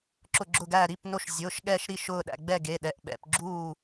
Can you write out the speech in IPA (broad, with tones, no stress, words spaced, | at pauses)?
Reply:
ǁʊ˧˩ɡ͡ǁʊ˧˩ɡæ˧˩ ɾi˩˧˩p no˧˩ʃ zʲʊː˩˧˩ʃɠɛ˧˩ʃ ɾi˧˩ʃʊː˧˩ɗæ̰˧˩ ɡ͡bɛ˧˩ ɡe˩˧˩ɗɛ˩˧˩ʔ ɓɛ̰˩˧˩pɡ͡ǁuː˧˩